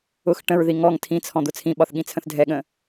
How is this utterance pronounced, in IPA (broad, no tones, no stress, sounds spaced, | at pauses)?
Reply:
ʊ x ʈ ə̃ ɹ ð i ŋ ɔ ŋ tʰ ĩ t͡sʰ ɔ̃ d̪ ʊ t͡sʰ ĩ ɓ ɒ θ ɠ ĩ t͡sʰ ə̃ θ dʱ ɛ ɠ ə̃